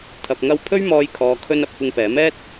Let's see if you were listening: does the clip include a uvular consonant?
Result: no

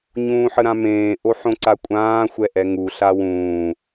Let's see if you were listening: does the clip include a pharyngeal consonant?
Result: yes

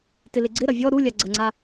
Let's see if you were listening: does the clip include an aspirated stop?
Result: no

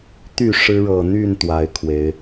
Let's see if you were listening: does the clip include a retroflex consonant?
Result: yes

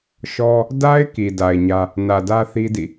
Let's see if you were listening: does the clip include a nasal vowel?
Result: no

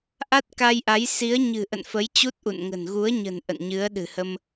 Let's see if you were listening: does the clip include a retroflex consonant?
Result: no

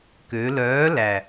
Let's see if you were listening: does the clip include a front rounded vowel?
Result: yes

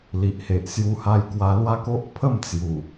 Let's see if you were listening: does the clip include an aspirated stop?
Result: yes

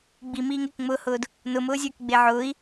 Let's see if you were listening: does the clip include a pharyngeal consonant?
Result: yes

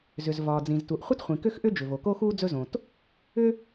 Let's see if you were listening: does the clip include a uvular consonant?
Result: yes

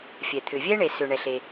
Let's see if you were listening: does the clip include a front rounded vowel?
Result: yes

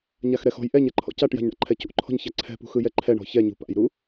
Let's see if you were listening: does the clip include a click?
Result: yes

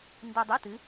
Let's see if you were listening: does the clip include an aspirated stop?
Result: no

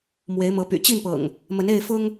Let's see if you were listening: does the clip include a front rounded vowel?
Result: yes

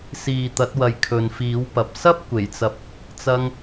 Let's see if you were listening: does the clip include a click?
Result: no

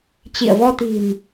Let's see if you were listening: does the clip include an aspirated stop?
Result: no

